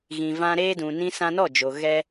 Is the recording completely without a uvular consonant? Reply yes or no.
yes